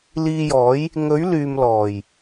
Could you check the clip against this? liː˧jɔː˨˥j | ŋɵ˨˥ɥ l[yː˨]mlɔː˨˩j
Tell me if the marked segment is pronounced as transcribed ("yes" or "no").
yes